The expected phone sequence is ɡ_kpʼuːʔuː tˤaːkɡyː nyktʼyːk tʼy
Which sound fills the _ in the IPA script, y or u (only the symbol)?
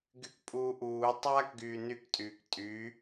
y